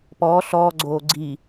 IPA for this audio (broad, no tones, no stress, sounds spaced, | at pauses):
p ɔː ɬ ɔː ɡ͡ǀ oː ɡ͡ǀ i